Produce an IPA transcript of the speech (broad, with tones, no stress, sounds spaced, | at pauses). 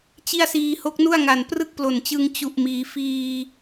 t͡ɕ i˥˩ a̯ s iː˧ h o˦˥ k̚ n u˥˩ a̯ ŋ a˨˩ n p r ɯ˥˩ k̚ p l o˨˩ n t͡ɕ ɯ˧ ŋ t͡ɕ u˨˩ ʔ m iː˩˦ f iː˧